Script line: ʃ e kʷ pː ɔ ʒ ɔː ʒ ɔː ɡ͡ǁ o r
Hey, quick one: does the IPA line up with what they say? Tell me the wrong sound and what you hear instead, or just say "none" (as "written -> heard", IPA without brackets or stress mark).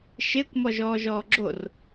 pː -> m